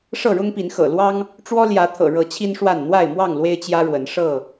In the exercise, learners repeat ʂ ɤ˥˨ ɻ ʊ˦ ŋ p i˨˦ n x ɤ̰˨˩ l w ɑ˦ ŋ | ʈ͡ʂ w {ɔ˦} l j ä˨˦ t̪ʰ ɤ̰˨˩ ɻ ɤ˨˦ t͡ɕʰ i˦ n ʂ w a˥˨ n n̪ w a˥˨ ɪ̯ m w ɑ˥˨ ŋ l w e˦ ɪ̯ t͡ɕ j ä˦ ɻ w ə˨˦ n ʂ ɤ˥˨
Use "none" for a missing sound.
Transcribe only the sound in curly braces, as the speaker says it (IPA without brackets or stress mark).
ɔ˦